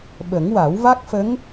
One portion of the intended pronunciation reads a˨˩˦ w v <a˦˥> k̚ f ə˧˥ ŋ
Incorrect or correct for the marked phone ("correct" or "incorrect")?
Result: correct